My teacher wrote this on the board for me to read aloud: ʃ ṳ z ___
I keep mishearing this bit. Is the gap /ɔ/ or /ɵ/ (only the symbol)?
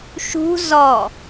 ɔ